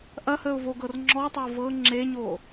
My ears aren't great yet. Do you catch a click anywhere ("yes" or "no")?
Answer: yes